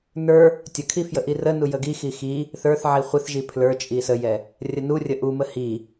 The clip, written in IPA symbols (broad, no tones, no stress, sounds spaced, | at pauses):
n ə˞ | tʲ ə kʰ i f j ə ʔ i r ə n u j ə ɡ i x i x i | θ ə˞ θ ʕ i χʷ ɪ θ ʒ i pʰ l ə˞ t͡ʃʼ i s ə j ɛ | rʲ ə n u rʲ ə ʔ u m ə h i